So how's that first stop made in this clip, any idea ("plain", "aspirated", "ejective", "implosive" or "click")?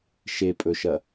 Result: ejective